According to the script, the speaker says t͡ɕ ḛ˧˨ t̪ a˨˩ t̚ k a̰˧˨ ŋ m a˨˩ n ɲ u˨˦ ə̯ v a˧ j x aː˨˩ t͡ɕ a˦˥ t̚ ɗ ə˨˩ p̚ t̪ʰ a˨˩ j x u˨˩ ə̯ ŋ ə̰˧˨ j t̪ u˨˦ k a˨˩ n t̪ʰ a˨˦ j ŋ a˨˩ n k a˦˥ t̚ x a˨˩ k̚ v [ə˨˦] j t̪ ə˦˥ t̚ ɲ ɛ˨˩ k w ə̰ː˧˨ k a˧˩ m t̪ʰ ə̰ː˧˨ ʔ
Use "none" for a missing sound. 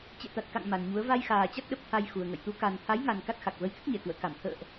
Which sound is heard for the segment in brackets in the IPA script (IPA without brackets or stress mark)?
ə˧